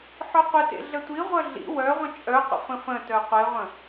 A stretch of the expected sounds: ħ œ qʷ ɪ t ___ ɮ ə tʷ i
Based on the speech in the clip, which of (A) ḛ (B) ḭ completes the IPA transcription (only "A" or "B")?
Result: A